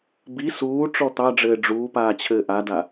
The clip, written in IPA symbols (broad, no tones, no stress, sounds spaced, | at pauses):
b i s uː ʈ͡ʂ ɔ t̪ ɑ ɖ͡ʐ ɘː ɖ͡ʐ uː p aː t͡ɕʰ ɘː ʔ a d a